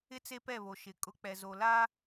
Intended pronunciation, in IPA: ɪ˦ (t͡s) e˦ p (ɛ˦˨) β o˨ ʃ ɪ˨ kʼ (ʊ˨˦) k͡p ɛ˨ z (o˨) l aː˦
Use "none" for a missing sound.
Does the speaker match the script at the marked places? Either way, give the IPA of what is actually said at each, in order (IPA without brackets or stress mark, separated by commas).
t͡s, ɛ˦˨, ʊ˨˦, o˨